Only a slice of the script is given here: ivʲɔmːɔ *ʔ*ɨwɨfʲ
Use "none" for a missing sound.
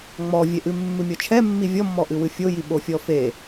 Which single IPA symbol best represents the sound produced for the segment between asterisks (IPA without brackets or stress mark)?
ʔ